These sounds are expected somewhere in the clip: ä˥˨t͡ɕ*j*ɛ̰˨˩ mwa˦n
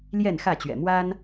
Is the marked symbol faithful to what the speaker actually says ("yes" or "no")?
no